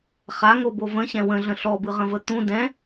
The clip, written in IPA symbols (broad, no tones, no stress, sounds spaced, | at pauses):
χ a ŋ o b o v ə̃ ɕ ɛ̃ w ə̃ ɮ ə̃ ɬ ɔ b ɯ ʁ ə̃ v ə t̪ ũ d ɛ̃